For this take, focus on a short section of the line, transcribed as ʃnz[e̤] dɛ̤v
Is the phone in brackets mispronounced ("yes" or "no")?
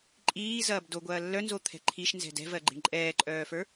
yes